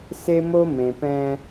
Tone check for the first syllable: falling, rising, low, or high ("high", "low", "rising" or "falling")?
high